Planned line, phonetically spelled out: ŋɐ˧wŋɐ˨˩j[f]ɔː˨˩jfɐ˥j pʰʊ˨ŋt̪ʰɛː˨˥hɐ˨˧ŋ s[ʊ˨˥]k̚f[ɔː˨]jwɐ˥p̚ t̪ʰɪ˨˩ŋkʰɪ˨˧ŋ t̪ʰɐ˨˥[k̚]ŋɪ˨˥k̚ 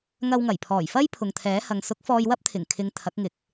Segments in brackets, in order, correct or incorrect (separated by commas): incorrect, correct, incorrect, correct